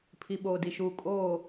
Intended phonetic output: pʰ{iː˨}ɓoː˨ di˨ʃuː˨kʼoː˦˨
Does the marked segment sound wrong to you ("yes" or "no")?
yes